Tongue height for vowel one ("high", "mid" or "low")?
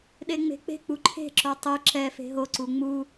mid